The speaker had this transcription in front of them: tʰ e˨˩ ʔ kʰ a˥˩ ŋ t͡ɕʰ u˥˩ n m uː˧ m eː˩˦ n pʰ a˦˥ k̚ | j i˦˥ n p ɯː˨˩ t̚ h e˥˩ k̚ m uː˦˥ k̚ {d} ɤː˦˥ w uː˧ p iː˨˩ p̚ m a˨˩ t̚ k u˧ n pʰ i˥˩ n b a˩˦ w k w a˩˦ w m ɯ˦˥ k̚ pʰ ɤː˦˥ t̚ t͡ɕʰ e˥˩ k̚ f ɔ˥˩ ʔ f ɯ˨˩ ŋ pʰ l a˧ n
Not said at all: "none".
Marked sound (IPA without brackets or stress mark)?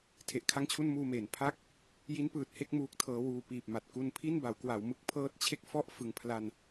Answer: tʰ